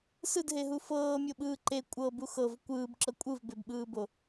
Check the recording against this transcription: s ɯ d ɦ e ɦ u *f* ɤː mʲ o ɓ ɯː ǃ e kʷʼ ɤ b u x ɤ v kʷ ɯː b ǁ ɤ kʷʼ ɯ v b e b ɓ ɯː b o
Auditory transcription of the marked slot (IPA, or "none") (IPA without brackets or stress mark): f